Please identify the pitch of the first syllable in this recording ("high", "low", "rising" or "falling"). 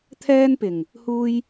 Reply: high